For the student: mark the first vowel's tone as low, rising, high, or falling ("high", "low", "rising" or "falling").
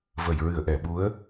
low